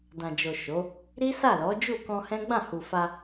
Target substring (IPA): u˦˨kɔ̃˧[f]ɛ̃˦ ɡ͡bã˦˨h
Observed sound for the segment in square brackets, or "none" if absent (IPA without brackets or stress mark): h